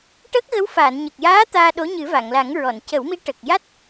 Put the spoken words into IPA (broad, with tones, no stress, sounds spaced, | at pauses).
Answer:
ʈ ə˦˥ k̚ ɣ ə˧˥ w f a˨˩˨ n ɲ ə˨˩ k̚ j aː˧˥ t̪ aː˧ ɗ o˧˥ ɲ ɨ˨˩˦ v a˨˩˨ ŋ l a˨˩˦ ŋ ɹ ɔ˨˩˨ n c ə˨˩˦ w m i˧˥ ʈ ə˨˩ k̚ j a˦˥ t̚